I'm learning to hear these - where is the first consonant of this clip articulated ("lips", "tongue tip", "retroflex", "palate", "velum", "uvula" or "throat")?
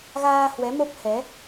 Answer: velum